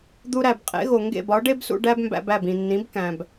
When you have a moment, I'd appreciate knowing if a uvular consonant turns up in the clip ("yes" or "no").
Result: yes